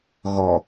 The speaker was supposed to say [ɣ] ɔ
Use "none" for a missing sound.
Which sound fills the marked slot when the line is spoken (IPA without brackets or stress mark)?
ɣ